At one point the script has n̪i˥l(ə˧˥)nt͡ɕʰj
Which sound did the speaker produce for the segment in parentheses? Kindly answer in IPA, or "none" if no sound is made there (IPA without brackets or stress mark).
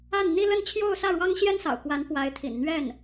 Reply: ə˥˧